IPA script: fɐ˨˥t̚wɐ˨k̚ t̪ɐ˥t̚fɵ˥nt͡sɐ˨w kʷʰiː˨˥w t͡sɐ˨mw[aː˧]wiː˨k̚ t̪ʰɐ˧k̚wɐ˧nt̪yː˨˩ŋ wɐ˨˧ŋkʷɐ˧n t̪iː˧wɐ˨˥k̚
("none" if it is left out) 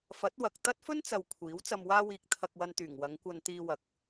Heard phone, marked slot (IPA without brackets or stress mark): aː˧